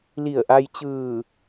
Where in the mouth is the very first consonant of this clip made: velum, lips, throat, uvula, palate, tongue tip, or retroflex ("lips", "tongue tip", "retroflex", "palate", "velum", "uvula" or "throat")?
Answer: tongue tip